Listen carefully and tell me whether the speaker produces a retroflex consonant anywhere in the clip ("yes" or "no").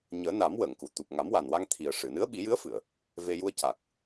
yes